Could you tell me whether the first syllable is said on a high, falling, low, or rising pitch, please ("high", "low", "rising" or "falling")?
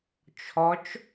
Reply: rising